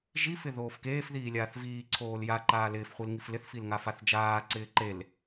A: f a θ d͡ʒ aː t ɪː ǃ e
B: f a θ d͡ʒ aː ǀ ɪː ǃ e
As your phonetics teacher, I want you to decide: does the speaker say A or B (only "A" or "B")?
B